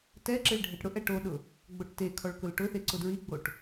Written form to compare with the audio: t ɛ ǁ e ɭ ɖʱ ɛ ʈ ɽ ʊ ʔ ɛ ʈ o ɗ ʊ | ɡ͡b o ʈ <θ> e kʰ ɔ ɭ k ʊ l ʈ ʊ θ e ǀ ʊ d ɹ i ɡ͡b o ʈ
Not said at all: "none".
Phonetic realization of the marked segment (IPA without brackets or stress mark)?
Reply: t